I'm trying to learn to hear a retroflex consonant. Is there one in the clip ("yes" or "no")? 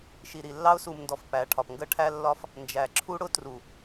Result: yes